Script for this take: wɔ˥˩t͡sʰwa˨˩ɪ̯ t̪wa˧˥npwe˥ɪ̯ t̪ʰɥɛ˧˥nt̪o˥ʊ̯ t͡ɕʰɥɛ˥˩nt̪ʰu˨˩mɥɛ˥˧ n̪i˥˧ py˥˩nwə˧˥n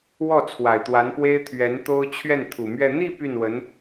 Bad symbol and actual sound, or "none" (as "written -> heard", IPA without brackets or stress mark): none